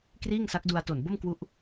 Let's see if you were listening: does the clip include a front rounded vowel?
no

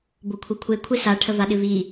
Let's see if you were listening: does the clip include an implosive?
yes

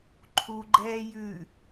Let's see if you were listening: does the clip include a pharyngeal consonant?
no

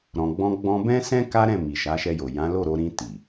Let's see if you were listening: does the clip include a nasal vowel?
yes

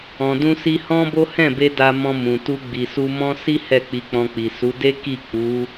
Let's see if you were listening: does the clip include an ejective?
no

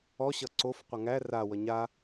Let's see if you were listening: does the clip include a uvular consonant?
yes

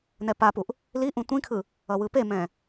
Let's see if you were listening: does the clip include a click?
no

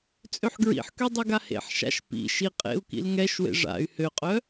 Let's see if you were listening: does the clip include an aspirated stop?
no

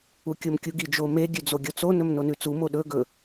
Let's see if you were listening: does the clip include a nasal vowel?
no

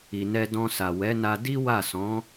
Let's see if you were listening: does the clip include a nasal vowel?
yes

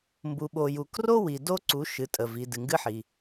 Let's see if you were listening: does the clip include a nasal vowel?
no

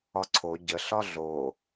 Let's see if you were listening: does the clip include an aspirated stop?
yes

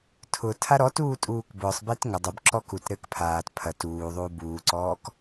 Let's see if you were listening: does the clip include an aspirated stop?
yes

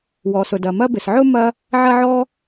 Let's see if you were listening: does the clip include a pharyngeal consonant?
yes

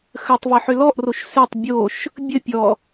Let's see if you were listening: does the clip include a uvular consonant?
no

